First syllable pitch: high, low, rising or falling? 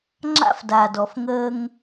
high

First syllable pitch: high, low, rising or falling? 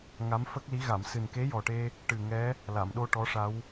rising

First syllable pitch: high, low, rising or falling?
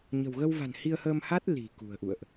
low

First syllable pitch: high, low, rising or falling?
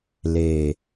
low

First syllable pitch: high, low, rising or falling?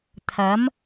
rising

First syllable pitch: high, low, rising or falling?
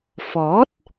rising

